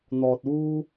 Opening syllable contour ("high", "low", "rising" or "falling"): low